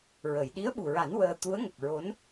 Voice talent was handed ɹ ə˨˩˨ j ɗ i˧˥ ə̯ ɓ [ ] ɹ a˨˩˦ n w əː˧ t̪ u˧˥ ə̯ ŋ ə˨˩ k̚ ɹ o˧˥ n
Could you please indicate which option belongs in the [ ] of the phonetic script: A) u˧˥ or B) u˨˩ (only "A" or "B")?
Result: B